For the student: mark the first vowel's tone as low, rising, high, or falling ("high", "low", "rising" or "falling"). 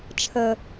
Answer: high